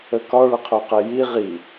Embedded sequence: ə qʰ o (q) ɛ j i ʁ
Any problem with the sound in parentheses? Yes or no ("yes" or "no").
no